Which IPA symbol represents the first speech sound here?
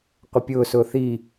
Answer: qʷ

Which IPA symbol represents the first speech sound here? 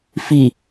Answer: f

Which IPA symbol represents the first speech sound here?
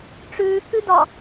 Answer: ʈ͡ʂ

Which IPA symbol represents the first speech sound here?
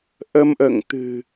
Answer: ʔ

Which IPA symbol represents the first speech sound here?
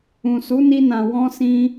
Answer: ũ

